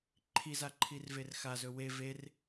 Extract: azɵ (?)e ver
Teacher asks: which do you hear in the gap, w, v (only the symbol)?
w